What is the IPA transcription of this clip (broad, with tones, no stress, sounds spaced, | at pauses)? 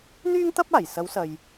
n̪ yː˥ ŋ t̪ ɐ˥ p̚ aː˨˩ j s ɐ˨˧ w s ɐ˨ j